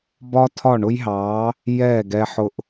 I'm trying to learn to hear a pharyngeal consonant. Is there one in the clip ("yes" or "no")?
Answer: yes